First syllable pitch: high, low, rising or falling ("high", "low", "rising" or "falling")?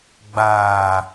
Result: low